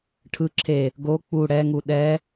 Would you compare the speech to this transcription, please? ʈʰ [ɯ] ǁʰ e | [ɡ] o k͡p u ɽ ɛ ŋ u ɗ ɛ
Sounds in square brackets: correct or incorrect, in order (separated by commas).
correct, correct